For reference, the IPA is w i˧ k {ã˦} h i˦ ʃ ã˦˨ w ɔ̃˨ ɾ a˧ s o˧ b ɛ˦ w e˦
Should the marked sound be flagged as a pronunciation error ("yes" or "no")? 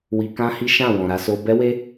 no